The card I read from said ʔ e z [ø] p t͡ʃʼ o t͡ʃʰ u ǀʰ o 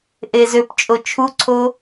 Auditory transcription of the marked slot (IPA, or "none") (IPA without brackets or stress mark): ø